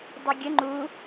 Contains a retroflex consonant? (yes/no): no